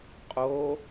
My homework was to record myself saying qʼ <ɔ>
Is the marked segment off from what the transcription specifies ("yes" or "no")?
yes